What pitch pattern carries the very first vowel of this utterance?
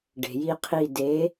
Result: low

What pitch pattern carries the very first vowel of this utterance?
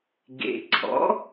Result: low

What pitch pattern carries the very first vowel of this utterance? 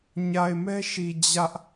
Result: low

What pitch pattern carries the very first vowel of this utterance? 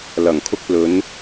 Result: low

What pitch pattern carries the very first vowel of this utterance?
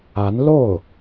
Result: rising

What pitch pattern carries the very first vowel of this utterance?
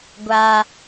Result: high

